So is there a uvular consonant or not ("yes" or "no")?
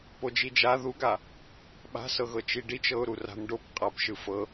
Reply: yes